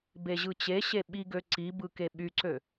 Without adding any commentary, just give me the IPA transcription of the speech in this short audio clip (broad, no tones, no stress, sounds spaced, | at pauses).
b e ʑ ɯ t͡ɕ e ɕ e ɓ i ɡ ø ǀ i b ɯ k e ɓ y ǀ ø